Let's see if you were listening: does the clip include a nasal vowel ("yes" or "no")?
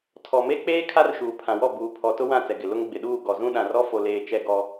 yes